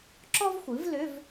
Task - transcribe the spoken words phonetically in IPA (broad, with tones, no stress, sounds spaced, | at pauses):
ǁ ɔ˥ v xʷ ɨ˩˥ v l ʏ˧˥˧ v